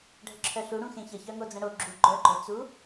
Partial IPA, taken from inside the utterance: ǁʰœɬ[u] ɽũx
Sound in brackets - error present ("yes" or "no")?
no